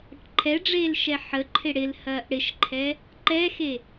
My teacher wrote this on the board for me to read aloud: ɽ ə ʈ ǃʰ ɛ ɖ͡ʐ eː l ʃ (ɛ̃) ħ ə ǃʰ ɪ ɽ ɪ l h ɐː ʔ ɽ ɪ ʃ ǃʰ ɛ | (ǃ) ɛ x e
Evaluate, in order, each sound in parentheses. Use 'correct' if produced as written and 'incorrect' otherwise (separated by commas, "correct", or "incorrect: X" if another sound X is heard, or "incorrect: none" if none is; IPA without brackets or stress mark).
incorrect: ɛ, correct